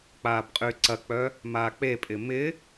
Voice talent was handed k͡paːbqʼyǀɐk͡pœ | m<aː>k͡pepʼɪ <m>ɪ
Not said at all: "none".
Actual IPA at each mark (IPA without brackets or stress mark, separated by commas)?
aː, m